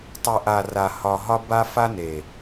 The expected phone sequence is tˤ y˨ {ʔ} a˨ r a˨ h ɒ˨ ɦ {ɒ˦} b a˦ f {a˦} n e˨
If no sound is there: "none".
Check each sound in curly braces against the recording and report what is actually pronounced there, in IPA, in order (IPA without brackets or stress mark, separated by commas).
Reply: ʔ, ɒ˦, a˦